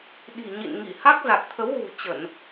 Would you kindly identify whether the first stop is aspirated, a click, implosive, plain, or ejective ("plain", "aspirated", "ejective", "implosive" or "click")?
implosive